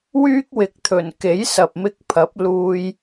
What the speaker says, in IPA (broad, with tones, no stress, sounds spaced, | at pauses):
w yː˥ k̚ w ɪ˨˥ k̚ t̪ʰ ɵ˨˩ n k e˨˥ j s ɐ˨ p̚ m ɪ˧ k̚ pʰ ɐ˨˥ p̚ l uː˧ j